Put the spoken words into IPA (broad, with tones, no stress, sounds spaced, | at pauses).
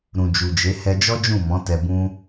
ɾ ũ˨ d͡ʒ u˨ d͡ʒ e˨˦ h ɛ˧ d͡ʒ ɔ˦ d͡ʒ ũ˦˨ m ɔ̃˨˦ t ɛ˧ b ũ˦